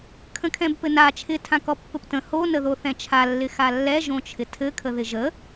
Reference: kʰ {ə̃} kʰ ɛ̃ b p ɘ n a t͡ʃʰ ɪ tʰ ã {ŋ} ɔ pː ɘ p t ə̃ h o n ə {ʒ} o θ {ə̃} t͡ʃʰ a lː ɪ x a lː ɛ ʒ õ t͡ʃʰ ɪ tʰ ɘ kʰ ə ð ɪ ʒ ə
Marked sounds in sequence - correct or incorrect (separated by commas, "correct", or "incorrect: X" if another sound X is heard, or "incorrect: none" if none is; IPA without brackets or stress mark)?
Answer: correct, incorrect: k, incorrect: ð, incorrect: ɛ̃